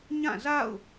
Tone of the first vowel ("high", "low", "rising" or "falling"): falling